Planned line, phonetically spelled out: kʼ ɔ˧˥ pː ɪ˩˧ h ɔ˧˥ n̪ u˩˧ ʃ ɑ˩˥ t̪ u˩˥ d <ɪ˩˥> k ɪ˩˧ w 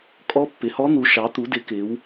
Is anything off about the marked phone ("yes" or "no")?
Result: no